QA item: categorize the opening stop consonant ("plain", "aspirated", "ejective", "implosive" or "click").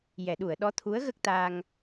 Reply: implosive